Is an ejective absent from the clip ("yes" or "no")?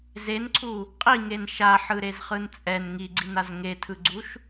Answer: no